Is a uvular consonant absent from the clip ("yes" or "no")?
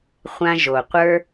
no